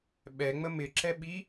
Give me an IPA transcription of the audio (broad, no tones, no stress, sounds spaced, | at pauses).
ɓ ɛ ŋ͡m ə m ɪ ǁ ɛ ɓ i